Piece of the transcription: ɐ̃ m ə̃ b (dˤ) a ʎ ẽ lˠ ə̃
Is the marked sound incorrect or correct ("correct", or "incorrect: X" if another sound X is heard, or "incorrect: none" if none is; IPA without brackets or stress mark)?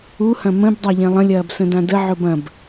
correct